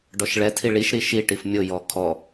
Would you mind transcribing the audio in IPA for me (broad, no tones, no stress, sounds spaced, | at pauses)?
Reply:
ɖ ɔ ʃ ɭ ɛ tʰ i ɭ i ʃ ɾ i ʃ i ʈ i f mʲ ʊ j ɔ kʰ ɔ